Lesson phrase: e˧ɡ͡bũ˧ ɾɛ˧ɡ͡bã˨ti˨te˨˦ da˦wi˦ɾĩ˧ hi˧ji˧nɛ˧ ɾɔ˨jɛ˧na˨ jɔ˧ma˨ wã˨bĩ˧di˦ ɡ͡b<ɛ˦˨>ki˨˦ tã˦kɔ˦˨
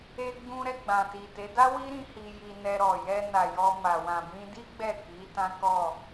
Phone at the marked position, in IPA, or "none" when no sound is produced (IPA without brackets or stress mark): ɛ˦˨